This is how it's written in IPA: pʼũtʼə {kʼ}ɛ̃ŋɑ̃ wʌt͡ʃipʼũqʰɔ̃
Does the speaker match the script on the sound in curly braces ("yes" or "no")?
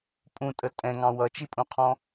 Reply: no